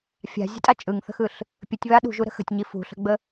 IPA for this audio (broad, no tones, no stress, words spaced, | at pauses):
fʲa̤zʲə̤tʼa t͡ʃʼɯŋθə̤xɯɬ | pʲətʲβa ɗṳʒuɾə̤ xə̤tʲɲi fṳɬə̤ɡ͡bə